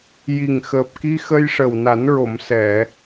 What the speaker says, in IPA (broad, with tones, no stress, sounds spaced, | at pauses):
j i˨˩ ŋ x əː˨˩ p̚ k i˧ x ə˧ j ʂ ə˨˩ w n a˨˩˦ n ɹ o˨˩˨ m s ɛ˨˩˨